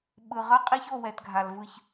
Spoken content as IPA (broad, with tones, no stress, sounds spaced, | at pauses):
ɓ ɯ˨ ʁ ʌ˦ qʼ i˦ ç o˦˨ w ɛ˨ t ɡʱ a˨ l v ɯ˧ ç